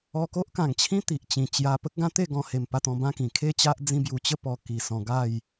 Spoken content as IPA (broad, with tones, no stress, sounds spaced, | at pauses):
ɔ˧ k o˦ ʔ k ã˨˩ ŋ t͡ɕʰ ĩ˦ t̪ i˨ ʔ t͡ɕ ĩ˨˩ t͡ɕ j a˧ p ə˦ k̚ ɡ ã˦ t̪ e˥˧ ɡ ɔ̃˧ h e˨˩ m p a˥˧ t̪ ɔ̃˧ b ã˥˧ k ĩ˨˩ kʰ e˥˧ t͡ɕ a˦ ʔ d͡z ĩ˧ b j u˨˩ t͡ɕ ə˥˧ p ɔ˧ k i˨˩ s ɔ̃˧ ɡ a˥˧ j